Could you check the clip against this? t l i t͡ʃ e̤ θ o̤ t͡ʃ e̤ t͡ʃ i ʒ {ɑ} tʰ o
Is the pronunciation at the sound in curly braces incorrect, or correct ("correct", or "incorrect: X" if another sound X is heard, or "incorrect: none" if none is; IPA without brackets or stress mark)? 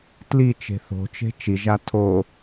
incorrect: a